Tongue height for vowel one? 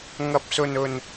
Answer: low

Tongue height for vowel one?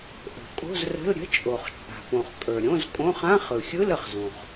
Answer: mid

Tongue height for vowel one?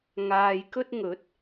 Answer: low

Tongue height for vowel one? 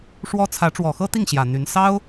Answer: mid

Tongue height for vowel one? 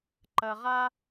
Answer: low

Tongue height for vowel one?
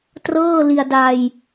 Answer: mid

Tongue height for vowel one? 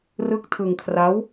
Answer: high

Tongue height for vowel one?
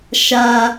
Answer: low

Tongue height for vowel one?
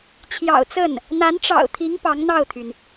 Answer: low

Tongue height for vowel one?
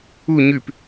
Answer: high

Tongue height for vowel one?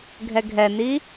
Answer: mid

